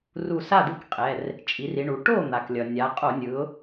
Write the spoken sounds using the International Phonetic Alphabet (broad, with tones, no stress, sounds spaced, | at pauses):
r u˧˩ s a˥˩ d̪ ɯ˥˩ k qʼ ɛ˩˧˩ r | t͡ʃʼ i˩˧ r i˩˧ ɳ u˩˧ ʈ o˥˩ n̪ a˩ k lʲ ʌ˩ nʲ a˩˧ qʼ o˧˩˧ nʲ ɯ˩˧ ʊ̯